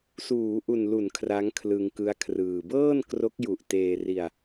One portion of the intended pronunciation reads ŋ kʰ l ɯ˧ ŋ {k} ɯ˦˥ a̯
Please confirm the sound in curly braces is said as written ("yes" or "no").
yes